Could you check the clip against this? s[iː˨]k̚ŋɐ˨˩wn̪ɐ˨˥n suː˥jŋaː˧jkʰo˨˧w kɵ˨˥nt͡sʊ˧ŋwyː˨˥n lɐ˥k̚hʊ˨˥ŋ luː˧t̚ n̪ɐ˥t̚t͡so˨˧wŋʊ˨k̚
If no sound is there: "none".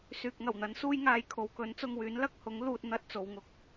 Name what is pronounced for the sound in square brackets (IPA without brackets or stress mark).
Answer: yː˨